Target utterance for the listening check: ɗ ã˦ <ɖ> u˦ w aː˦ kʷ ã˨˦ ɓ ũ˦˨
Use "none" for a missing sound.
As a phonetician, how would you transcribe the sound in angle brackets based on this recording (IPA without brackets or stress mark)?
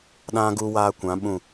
ɡ